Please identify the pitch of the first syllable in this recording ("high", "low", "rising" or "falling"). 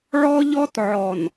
high